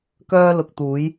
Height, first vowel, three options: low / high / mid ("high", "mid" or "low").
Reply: mid